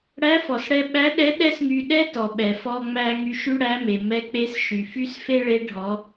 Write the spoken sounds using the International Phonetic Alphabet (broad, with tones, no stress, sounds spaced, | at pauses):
ɽ æ˧˥ f ɔ˩ s ɽ ɛ˧ ɓ æ˧˥ ɗ ɛ˧˥ ɗ ɛ˥ s ŋ y˧ ɗ ɛ˥ t ɔ˩ ɓ ɛ˩ f ɔ˧ ŋ͡m æ˧ ŋ y˧ ʃ y˥ ɽ æ˧˥ m e˩ m ɛ˧ k͡p e˧˥ s ʃ y˩ f y˥ s f e˥ ɭ e˧˥ ɖʱ ɔ˩˧